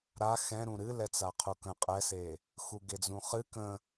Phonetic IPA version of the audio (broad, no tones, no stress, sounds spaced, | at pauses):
ɾ a x ɛ̃ ɾ ũ ɾ ɨ l ɛ t͡s a qʰ u k ə̃ qʼ ɛ s e | x u ɡ e d͡z ũ χ ɨ k ə̃